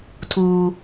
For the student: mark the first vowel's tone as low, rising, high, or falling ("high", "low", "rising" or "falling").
high